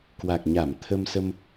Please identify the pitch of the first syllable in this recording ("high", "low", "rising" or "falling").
low